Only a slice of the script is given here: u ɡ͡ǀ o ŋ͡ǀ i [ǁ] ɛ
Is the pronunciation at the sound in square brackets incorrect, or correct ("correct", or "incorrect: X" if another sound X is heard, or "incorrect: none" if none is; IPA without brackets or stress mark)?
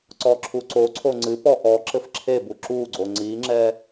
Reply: incorrect: ŋ͡ǁ